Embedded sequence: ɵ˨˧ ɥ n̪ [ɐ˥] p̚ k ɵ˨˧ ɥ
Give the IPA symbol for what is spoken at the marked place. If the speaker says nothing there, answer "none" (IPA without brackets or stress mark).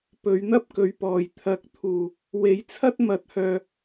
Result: ɐ˥